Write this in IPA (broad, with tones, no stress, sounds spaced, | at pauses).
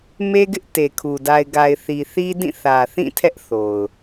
m e˦ ɡ ɪ˦ ʔ t e˨ kʰ u˨ d a˨ ɪ̯ ɡ a˨ ɪ̯ θ i˨ θ i˦ d ĩ˦˨ θ ä˨ θ ĩ˦˨ tʰ ɛ˦ ʔ θ o˨ ʊ̯